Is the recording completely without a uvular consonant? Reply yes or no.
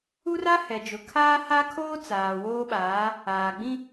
yes